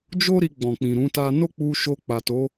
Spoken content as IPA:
d͡ʒo˦ ɾi˧ɡ͡bɔ̃˨k͡pĩ˨ ɾũ˨˦ta˦ no˦k͡pu˧ ʃo˧k͡pa˨to˨˦

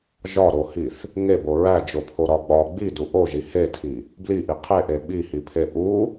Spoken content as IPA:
ʒɒɾohiθ | ŋebo ɹæd͡ʒopʰoɾɒ ɡ͡bɒ ɡ͡bidu ʔoʒi hetʰi | bliʔi qʰeʔe ɓihipʰe ʔu

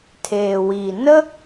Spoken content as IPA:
tʰeː˩wiː˩ nə˥

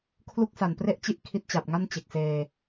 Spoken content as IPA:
kʰlu˥˩k̚sa˨˩npre˥˩ʔt͡ɕi˥˩ʔ kʰi˦˥t̚t͡ɕa˨˩p̚ŋa˥˩n t͡ɕe˨˩k̚seː˧

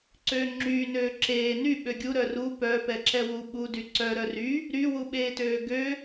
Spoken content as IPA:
ǀøːŋ͡ǁyː nøːǁeː ny ɓøɡʲu ɾœru pœ pɛǁɛwu ɓudy ǀœ ɾœry | ɾywuɓeːtøː ɡø

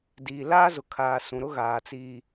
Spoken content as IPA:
diː˨laː˦zʊ˨kʰaː˨ sũ˨ɾʊ˦ ɣaː˨t͡siː˨

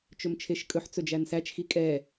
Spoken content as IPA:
t͡ʃɵmt͡ʃʰeʃkʼɵħ t͡sɵd͡ʒænsæt͡ʃxi kʼɛ

